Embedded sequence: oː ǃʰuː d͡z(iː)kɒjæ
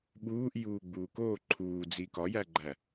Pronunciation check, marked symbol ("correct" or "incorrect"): correct